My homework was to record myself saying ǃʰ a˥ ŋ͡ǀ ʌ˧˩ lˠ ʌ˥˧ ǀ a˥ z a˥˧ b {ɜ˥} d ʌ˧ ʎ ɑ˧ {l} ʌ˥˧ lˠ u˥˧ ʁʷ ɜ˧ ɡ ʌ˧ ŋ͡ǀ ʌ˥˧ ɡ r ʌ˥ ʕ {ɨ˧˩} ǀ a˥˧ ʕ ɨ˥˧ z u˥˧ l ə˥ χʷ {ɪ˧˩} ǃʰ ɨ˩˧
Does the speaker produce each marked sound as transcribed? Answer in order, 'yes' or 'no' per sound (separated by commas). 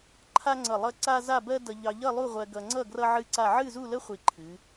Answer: yes, no, no, no